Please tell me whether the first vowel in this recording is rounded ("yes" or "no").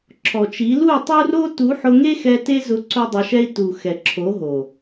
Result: yes